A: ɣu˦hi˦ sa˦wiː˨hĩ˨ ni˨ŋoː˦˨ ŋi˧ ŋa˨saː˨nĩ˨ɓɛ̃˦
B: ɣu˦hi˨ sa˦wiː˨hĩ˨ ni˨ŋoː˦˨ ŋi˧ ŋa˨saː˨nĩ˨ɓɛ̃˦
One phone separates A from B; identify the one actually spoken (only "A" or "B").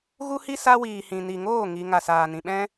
A